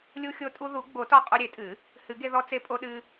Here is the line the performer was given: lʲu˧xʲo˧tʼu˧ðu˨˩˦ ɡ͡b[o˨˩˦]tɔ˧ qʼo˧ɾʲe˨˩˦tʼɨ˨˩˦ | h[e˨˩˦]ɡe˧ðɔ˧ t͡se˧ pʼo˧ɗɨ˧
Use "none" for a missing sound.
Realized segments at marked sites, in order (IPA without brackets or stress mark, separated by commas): o˨˩˦, ɨ˨˩˦